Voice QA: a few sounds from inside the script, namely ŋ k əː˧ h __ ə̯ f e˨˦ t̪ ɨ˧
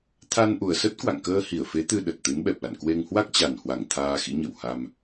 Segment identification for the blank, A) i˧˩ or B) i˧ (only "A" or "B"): A